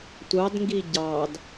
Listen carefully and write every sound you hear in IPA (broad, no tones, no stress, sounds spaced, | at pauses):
tʷ ɑ d ŋ ɡ i ɟ ɑ d